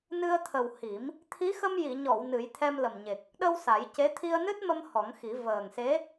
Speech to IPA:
n ɨ˧ ə̯ t̪ʰ ə˨˩ w h i˨˩˦ m | t̪ʰ i˧˥ x ə˧ m j i˨˩˨ ɲ ɔ˨˩˨ w n ɨ˨˩˦ j t̪ʰ ɛ˧ m l ə˨˩ m ɲ e˨˩ k̚ | ɗ ə˧ w s a˨˩˦ j c e˧˥ t̪ʰ i˧ ə̯ n ɨ˦˥ t̚ m ə˧ m h ɔ˨˩˦ ŋ x i˨˩˦ v əː˨˩ ŋ s e˧˥

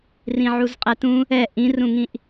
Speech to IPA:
r ĩ ʕ u z qʼ ɛ t ũ | ɛ ʔ ĩ r ũ ŋ ĩ ʔ

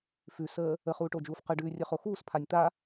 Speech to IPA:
f ʉ s əː | ə χ uː ʈ o d͡ʒ uː f q ə ɖ ʉː rʲ ə χ o x uː s pʰ a nʲ t̪ a

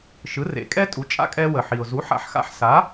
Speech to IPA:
ʃ ɯ˩˥ r ḛ˩˥ kʼ ɛ˥ tʼ u˩˥ t͡ʃʼ a̰˧ kʼ ɛ˧ w ə˩ ħ i˩ ʊ̯ z u˩˥ ħ a̰˩˥ ħ x a̰˩˥ ħ s a˩˥

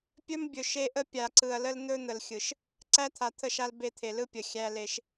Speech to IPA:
pʲ ɵ˦ m bʲ ɵ˨ ʃ e˦ ʔ ə˦ pʲ a˨ ǀ ɯ˨ ɐ̯ l ə˦ l n̪ ɵ˦ n̪ ə˨ l xʲ ɯ˨ ʃ | ǀ æ˦ t̪ʰ a˨ t̪ʰ ə˦˨ ʃ a˦ l b e˦˨ t̪ʰ e˨ l ɯ˦ pʲ ə˨ xʲ æ˦ l e˦ ʃ

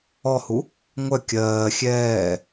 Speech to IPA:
ɔ h u | ŋʷ œ kʲ ɜː xʲ ɛː

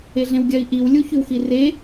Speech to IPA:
e ɮ ẽ w ɡʲ ɜ i̯ ʔ i w lʲ u ç ʉ w x i r e

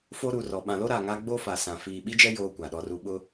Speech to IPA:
f o˦ ɾ u˨ r ɔ˨ ɓ ã˨ l o˦ ɾ a˨ ŋ a˦ ɡ͡b o˦ f a˨ s ã˨ f iː˨ ɓ i˦ d͡ʒ ɛ˦ j oː˦ kʷ a˨ ɗ ɔ˦ r u˦ ɓ ʊ˦

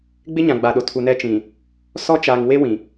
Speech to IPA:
ɡ͡b ɪ˦ ɲ ã˨ ɡ͡b a˨ ɗ o˨ tʰ u˨ n ɛ˦ t͡ʃ ĩ˨ | s ɔ˦ t͡ʃ aː˨ ŋ w e˦ w ĩ˨

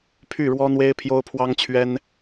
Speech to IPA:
pʰ y˥˩ ɻ w ɔ˥ n̪ w e˥ ɪ̯ pʰ j o˥ ʊ̯ pʰ w ɑ˥ ŋ t͡ɕʰ ɥ ɛ˥ n

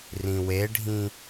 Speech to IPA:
r ĩ w e ɖʱ ĩ

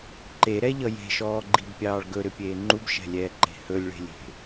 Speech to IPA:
ǃ e ɾ ɛ ʎ ʌ j e̤ ʃ ɔː ɡ͡ǃ i b pʲ ɑː ɭ ɡ ɵ ɾ ʏ pʲ eː ŋ͡ǃ u b ʃ ɛ̤ lʲ ɛː ǃ e̤ h ɵ lʲ ɭ e̤ lʲ e̤

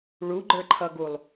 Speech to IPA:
ɭ u ɡ͡ǃ ə˞ ǃʰ ʌ ɡ u lˠ

